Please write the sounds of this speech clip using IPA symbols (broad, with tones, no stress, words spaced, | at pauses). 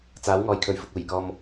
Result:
t͡saː˨˥w ŋɔː˨˧jkʰɵ˨ɥfʊ˨k̚ uː˨˩jkɔː˧m